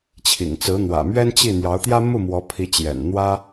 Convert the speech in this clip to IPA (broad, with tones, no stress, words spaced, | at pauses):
t͡ɕʰḭ˨˩ŋt͡sɹ̩˧˥n̪wä̰˨˩ mɥɛ˥nt͡ɕi˥˩ n̪jɑ˧˥ʊ̯t̪jä˥ mu˥˩mwɔ˧˥ pʰi˧˥t͡ɕjɛ̰˨˩n n̪wä˥